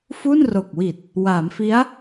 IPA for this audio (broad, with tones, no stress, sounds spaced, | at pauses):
f u˥˩ n r o˨˩ k̚ w i˨˩ t̚ | w aː˩˦ m f i˦˥ a̯